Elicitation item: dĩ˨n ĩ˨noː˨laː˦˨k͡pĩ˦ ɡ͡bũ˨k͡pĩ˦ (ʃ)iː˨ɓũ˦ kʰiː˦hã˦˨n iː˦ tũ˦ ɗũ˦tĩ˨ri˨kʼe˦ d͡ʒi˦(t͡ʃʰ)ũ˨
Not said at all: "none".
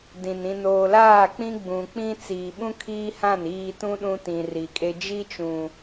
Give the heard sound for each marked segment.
t͡s, t͡ʃ

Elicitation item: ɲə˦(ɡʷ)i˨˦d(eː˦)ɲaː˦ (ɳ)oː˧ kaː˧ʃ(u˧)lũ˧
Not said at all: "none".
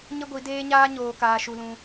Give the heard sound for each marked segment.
ɡʷ, eː˦, ɲ, u˧

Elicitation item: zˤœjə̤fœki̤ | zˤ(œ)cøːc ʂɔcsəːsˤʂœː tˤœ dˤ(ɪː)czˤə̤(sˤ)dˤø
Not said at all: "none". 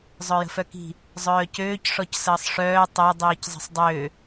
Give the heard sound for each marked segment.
œː, iː, sˤ

